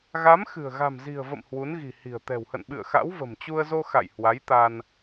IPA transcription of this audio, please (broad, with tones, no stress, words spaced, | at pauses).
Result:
ɣa˨˦mxɨ̤˨˩ə̯ ɣa̤˨˩mzi̤˨˩ə̯və̰˧˨m hwu˨˦nɣi̤˨˩hi̤˨˩ə̯ t̪ɛ̤˨˩whə̰˧˨n ɓɨ̰˧˨ə̯xa̰˧˥wvə̤˨˩m t͡ɕu˧ə̯zo˧ xa̰˧˨jhwa˨˦jt̪a˧n